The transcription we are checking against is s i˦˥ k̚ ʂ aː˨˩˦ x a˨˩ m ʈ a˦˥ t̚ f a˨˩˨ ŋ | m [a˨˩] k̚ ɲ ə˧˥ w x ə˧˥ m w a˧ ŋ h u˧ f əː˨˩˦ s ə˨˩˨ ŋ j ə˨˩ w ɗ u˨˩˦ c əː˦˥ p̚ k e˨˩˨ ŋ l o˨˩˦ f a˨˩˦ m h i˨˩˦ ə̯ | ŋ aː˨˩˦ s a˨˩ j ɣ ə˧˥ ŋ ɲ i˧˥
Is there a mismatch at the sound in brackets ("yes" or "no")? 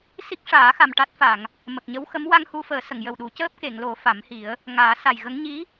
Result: yes